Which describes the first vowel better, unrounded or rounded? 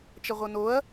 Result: unrounded